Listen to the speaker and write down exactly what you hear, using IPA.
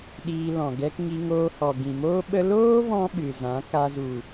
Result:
ɗ iː˧ l ɔ̃˨ ɡ ɛ˧ k ŋ i˧ ŋ oː˧ h ɔ˨ ɡ ĩ˨ m oː˦ ɓ ə˦ l oː˦ v ɔ̃˦ ɓ ɨ˨ z ã˨˦ k a˧ z u˨

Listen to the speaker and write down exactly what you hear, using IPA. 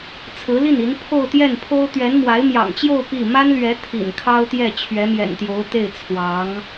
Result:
t͡sʰ ɹ̩˧˥ l i˥˩ n i˧˥ n pʰ o˥˧ ʊ̯ t̪ j ɛ˥˩ n pʰ o˥ ʊ̯ t̪ ɥ ɛ˧˥ n m w a˧˥ ɪ̯ m j ɑ̰˨˩ ŋ t͡ɕ j o˥˧ ʊ̯ p i˥˩ m a˥ n l ɥ ɛ˧˥ t̪ʰ ḭ˨˩ n kʰ ɑ˥ ʊ̯ t̪ j ɛ˥˩ t͡ɕʰ ɥ ɛ˧˥ m j ɛ̰˨˩ n t̪ j o˧˥ ʊ̯ t̪ e˥˩ ɪ̯ t͡sʰ w ɑ˧˥ ŋ

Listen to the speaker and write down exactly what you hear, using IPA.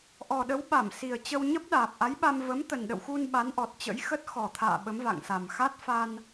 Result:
ʔ ɔ˨˩ ɗ ə˨˦ w ɓ a˧˩ m s i˨˩ ə̯ t͡ɕ ə˧ w ɲ ə˦˥ p̚ ɗ aː˨˩ p̚ ʔ a˨˦ j ɓ a˧ m v ə˨˦ m t̪ ə˨˩ n ɗ ə̰˧˨ w x u˧ n ɓ a˨˦ n ʔ ɔ˨˩ t̚ t͡ɕ ə̰˧˥ j x ə˦˥ t̚ x ɔ˨˩ t̪ʰ a̰ː˧˨ ɓ ə˨˦ m v a̰˧˨ ŋ s a˨˩ m x a˦˥ t̚ f a˧ n

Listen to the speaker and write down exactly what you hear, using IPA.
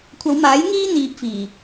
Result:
kʷʰ ɐ˨˧ w m aː˨˥ j ŋ iː˥ n̪ iː˧ p̚ f iː˨˩

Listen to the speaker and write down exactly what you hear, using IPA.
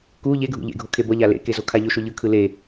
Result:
k u ʎ e ɡʱ ṵ ʎ ḛ ɡʱ o kʰ e b ʌ ʎ a l ḛ k e z o kʰ a ʎ o ʃ o ʎ ɯ kʰ ɯ l e

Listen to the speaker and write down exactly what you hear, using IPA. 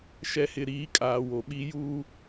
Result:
ʃ ɛ˨ h ɪ˨ ɾ iː˨˦ kʼ aː˨ w o˨ ɓ i˦ j uː˦

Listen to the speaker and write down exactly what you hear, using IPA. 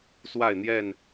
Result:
s w a˥˨ ɪ̯ n̪ j ɛ˥˨ n

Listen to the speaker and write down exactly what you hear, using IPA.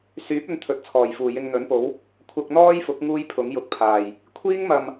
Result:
s yː˨˥ p̚ ɵ˧ n t̪ʰ ɵ˨˥ t̚ t͡sʰ ɔː˨˩ j f uː˨˩ j ɪ˧ ŋ n̪ ɵ˨˥ n p o˨˥ w | kʷʰ ɐ˧ k̚ n̪ ɔː˥ j f ʊ˨˥ k̚ ŋ uː˥ j pʰ ʊ˨˥ ŋ j ʊ˧ k̚ pʰ aː˨˩ j | kʷʰ iː˥ ŋ m ɐ˨ m

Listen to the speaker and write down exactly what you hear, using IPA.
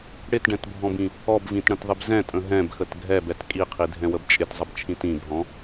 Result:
ɽ ɪ t ɖ ɛ̃ t bʱ ɔ̃ b ĩ | ɔ b v ĩ t ɽ ə̃ t ðˤ ɪ b z ɛ̃ tʼ ə̃ ɦ ɛ̃ b x ə t ɡʱ ɛ b ɛ t kʼ i qʰ i dʱ ɛ̃ w ə b t͡ʃʼ ɪ t zˤ ə b t͡ʃʰ ĩ t ĩ b ɦ ɔ̃

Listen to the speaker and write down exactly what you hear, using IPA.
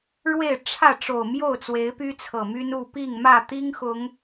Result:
ɻ w e˥˨ ɪ̯ ʈ͡ʂʰ ä˥˨ ʈ͡ʂ o˨˩ ʊ̯ m j o˥˨ ʊ̯ t͡s w e˨˦ ɪ̯ p y˦ t͡sʰ ɤ˨˩ m y˦ n u˥˨ p i˥˨ ŋ m ä˥˨ t̪ i˦ ŋ x ʊ˨˦ ŋ

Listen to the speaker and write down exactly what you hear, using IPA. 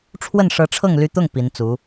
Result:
ʈ͡ʂʰ w ə˥˩ n ʂ ɤ˧˥ ʈ͡ʂʰ ɤ˥˩ ŋ l y˥ t̪ ʊ˥˩ ŋ p i˧˥ n t͡s u˧˥

